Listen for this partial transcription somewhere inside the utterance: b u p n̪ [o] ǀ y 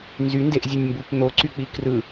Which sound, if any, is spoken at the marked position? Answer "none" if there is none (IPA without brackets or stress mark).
o